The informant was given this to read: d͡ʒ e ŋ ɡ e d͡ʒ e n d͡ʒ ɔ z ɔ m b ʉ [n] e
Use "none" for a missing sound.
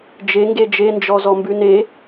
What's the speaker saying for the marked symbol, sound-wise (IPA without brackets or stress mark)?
n